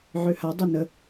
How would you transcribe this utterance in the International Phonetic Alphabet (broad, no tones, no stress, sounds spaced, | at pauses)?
ʕ ø h a dˤ i n ə